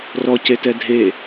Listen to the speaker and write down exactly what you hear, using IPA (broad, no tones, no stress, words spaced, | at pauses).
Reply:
rɔcetɛ dʱe